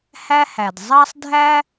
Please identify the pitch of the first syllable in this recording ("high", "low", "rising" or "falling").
high